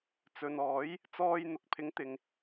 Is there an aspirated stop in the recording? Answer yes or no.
yes